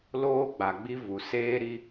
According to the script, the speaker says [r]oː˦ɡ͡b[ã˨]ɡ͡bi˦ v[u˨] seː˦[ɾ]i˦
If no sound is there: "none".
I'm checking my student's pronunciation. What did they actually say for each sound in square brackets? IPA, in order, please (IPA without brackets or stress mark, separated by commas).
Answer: l, a˨, u˨, ɾ